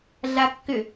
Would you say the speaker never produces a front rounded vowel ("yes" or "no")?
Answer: no